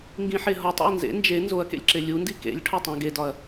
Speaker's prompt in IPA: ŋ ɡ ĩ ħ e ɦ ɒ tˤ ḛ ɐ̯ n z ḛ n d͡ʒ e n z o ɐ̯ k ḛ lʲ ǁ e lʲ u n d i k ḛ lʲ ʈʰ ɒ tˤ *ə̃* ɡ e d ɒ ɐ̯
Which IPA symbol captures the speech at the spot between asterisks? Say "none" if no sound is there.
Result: æ̃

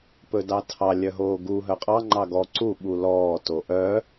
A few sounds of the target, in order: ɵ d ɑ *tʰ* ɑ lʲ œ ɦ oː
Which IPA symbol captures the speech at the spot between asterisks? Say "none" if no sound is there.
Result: tʰ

